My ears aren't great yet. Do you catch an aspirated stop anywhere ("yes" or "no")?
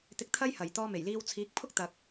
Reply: yes